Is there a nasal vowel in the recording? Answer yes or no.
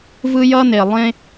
yes